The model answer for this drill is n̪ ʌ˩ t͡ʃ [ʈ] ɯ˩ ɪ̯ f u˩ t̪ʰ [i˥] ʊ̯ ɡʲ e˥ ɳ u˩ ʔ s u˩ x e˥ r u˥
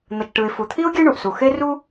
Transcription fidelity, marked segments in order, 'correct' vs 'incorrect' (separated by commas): correct, correct